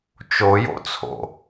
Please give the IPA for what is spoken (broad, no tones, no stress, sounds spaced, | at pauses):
t͡ʃ o j o̰ t͡sʰ o̰